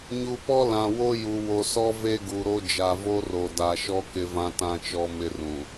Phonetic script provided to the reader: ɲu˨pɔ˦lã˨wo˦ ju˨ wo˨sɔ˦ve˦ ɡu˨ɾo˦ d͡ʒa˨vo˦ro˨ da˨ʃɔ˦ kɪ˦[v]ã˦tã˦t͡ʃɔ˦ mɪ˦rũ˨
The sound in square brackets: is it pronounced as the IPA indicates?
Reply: yes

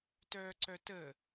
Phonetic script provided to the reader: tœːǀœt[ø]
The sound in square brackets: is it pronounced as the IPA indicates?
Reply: no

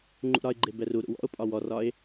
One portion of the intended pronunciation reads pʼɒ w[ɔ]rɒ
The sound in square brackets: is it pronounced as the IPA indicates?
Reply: yes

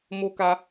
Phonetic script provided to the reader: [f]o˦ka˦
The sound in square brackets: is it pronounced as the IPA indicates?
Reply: no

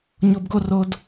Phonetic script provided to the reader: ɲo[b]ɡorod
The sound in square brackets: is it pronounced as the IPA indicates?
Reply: yes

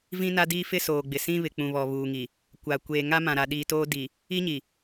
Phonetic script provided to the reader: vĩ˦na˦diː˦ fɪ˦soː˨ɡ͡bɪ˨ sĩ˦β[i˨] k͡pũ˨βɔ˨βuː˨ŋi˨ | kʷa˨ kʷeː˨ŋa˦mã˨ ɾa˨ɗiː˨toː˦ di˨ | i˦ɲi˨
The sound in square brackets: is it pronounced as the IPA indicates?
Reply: no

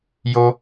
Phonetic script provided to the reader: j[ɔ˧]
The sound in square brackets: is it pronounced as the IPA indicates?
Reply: no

